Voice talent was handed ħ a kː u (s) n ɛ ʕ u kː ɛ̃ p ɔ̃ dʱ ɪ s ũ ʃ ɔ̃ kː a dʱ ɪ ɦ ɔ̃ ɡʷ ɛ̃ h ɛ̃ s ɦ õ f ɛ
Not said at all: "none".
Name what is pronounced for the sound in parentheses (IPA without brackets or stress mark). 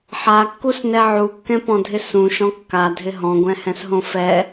s